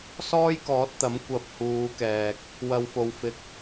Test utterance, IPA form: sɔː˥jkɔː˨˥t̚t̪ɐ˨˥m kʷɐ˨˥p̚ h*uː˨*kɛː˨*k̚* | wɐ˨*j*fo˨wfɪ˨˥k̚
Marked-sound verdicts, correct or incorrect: incorrect, correct, incorrect

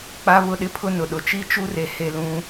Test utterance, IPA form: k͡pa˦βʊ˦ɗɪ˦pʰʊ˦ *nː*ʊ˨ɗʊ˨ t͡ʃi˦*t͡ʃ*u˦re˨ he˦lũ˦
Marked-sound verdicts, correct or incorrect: incorrect, correct

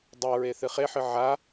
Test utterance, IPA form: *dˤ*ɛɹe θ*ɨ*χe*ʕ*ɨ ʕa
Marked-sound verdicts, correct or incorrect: correct, correct, incorrect

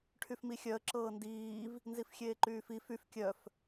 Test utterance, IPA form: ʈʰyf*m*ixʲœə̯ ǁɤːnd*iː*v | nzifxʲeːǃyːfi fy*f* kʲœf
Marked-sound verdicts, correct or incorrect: correct, correct, correct

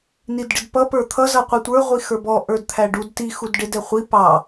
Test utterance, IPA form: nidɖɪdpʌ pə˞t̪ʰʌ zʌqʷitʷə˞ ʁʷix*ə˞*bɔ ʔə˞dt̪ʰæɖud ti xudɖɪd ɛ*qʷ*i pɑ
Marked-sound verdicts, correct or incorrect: correct, incorrect

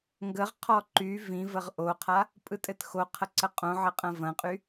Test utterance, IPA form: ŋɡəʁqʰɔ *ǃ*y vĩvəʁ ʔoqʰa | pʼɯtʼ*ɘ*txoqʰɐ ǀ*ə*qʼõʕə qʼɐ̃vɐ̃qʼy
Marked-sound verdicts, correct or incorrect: correct, correct, correct

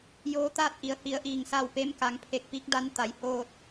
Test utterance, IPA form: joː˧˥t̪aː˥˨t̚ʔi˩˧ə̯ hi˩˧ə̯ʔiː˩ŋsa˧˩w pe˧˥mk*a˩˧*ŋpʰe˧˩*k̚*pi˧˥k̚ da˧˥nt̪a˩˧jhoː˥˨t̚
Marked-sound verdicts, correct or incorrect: correct, correct

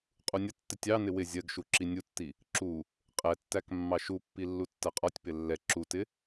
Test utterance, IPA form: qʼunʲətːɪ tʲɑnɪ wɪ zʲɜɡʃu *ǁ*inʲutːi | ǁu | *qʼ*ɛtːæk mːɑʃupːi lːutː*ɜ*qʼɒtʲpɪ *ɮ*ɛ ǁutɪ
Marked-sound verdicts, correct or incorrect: correct, correct, correct, incorrect

